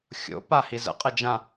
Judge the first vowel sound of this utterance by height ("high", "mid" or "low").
mid